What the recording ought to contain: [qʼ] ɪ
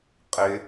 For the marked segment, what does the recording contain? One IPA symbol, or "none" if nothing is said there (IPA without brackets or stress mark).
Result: qʼ